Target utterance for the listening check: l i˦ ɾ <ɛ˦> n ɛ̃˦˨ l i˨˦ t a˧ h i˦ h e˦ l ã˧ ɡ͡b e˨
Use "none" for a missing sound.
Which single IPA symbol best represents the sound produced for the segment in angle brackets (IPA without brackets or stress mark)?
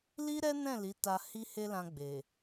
ɛ˦